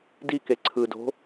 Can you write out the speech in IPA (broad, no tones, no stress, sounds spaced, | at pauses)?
d i k e ǀʰ ɯ d o̤